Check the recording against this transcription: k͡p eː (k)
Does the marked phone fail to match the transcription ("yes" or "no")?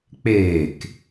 no